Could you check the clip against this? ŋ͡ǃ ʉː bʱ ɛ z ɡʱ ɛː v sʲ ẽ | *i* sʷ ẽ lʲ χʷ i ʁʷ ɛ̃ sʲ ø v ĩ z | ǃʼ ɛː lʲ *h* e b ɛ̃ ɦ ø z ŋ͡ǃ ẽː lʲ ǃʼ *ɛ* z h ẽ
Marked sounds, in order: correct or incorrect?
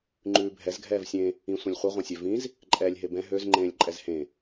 incorrect: ĩ, incorrect: ɦ, correct

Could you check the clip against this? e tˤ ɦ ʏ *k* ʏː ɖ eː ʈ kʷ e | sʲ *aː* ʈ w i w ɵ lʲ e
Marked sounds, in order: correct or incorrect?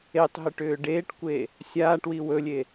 incorrect: ʈ, correct

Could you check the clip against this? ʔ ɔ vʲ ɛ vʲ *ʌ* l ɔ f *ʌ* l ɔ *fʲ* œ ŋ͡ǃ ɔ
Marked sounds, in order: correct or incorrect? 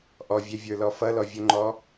incorrect: ə˞, correct, incorrect: vʲ

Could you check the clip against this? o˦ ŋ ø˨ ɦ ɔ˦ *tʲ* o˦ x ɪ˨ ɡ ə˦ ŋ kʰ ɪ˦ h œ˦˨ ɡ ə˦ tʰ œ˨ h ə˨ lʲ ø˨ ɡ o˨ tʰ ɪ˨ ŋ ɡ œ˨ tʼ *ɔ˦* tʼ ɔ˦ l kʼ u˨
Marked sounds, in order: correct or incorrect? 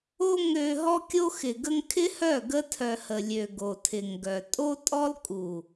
incorrect: kʲ, incorrect: o˦

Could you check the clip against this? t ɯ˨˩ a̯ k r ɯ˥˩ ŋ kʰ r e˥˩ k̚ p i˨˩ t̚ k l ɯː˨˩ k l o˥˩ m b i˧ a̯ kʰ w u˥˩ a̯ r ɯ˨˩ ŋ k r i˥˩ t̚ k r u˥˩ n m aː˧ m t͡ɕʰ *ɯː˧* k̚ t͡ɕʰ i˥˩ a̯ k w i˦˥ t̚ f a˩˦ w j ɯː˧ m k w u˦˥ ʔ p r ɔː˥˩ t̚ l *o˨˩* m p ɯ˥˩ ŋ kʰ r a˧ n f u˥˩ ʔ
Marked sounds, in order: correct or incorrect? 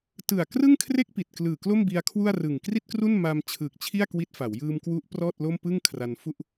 incorrect: ɯː˨˩, incorrect: o˥˩

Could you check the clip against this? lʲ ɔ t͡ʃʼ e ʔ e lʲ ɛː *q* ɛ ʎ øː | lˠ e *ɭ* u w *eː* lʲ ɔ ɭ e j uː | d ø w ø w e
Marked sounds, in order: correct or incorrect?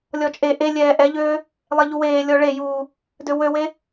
incorrect: ʔ, incorrect: ʎ, correct

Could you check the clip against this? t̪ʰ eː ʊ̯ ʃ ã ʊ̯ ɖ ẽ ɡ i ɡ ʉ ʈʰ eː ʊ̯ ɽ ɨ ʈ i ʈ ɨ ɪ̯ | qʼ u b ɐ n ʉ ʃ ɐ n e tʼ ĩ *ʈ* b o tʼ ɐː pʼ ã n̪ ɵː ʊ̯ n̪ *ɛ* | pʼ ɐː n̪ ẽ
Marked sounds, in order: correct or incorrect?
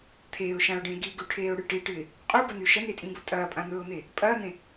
incorrect: none, incorrect: e

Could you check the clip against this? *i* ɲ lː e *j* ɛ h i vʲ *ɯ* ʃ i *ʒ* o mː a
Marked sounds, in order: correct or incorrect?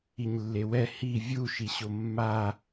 correct, incorrect: w, incorrect: u, incorrect: ɕ

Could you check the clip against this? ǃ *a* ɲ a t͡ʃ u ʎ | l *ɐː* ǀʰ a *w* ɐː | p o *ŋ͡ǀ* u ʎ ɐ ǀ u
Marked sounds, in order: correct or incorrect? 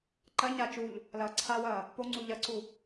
incorrect: ɐ, correct, correct, correct

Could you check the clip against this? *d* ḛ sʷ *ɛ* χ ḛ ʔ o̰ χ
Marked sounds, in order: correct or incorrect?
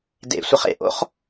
correct, incorrect: ə

